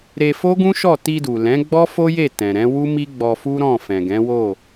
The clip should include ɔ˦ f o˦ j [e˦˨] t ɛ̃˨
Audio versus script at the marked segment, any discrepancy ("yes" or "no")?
no